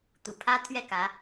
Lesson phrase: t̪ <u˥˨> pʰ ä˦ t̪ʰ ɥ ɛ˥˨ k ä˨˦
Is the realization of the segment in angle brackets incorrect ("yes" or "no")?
yes